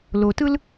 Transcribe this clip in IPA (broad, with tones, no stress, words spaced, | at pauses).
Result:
lo˨tɯ˦l